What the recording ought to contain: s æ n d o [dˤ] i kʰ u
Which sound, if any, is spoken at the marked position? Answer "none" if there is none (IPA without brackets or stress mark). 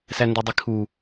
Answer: dˤ